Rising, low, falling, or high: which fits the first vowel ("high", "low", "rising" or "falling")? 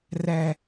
low